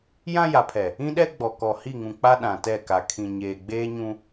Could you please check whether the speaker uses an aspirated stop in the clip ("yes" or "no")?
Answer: yes